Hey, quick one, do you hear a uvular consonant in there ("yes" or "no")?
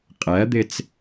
yes